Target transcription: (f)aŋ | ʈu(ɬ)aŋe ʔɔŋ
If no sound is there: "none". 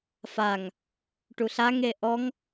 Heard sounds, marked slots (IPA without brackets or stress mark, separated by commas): f, ɬ